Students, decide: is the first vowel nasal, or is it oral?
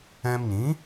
nasal